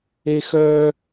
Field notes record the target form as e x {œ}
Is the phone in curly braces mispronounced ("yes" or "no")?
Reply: no